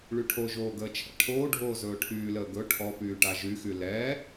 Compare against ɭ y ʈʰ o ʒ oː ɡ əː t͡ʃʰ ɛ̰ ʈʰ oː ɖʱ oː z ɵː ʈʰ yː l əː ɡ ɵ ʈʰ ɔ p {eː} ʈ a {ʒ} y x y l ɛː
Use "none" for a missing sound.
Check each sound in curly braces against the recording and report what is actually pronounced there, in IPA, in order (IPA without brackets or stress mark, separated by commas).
yː, ʒ